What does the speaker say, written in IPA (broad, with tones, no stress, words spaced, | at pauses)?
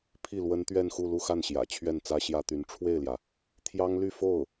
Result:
pʰi˥˩lwə˥n t̪ɥɛ˥˧nxu˥˧ lu˥˧xa˥˩nɕjä̰˨˩ t͡ɕʰɥɛ˥˩nt͡sä˥ɕjä˥t̪y˧˥n ʈ͡ʂʰwe˥˩ɪ̯ljä˩ | t̪ʰjɑ˥ŋly˥˧ fo˥˩ʊ̯